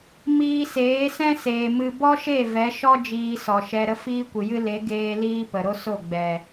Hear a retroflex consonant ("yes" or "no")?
no